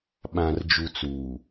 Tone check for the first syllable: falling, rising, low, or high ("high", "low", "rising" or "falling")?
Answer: low